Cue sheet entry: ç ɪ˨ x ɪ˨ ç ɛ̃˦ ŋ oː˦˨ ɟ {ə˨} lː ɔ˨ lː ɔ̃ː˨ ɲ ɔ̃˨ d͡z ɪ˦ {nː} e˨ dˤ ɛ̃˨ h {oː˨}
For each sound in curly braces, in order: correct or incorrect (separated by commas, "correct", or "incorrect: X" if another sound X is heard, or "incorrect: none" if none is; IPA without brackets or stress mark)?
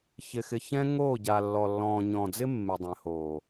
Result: incorrect: a˨, incorrect: mː, correct